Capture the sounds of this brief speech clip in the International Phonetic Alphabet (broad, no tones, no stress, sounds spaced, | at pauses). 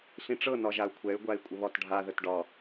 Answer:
ɬ ĩ ʈ͡ʂ ɤ n ɒ ʒ a u̯ kʷʰ ɛ y̯ ɡʷ a i̯ kʷʼ ə β ɒ t ɖʱ a ð ə t ɖ ɒ